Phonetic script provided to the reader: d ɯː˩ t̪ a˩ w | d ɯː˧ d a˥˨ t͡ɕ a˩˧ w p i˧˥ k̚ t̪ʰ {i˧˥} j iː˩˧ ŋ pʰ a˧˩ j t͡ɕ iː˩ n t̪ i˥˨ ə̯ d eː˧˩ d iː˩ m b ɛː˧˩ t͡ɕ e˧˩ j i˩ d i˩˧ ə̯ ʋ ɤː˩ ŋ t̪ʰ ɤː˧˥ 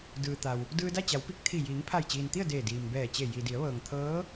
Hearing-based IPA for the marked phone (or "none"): i˧˩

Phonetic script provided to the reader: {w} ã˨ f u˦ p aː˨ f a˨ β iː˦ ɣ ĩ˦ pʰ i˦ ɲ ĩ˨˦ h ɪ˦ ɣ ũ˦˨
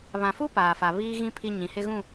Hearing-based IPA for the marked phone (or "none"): β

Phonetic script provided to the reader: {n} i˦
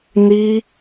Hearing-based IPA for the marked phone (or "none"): n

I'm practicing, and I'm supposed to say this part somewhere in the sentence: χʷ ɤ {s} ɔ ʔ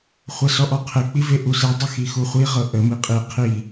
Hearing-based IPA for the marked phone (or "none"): s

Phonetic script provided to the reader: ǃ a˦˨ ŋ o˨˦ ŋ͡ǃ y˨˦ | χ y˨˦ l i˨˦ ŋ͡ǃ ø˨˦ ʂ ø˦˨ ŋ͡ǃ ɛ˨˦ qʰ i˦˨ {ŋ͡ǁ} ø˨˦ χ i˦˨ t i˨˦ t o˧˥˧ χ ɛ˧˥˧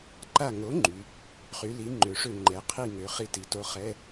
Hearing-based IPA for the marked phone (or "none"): ŋ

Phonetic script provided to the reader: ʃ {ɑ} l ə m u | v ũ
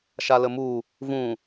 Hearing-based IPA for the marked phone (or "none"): a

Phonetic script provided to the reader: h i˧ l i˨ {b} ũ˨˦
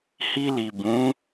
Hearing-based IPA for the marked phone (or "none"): b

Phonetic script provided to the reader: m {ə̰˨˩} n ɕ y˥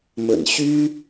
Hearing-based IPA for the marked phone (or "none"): ə̰˨˩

